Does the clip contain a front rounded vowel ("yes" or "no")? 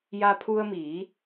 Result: no